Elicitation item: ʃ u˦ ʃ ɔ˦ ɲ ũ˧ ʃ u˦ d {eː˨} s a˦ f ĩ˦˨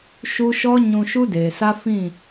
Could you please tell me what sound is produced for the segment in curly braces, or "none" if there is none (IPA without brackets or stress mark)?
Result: eː˨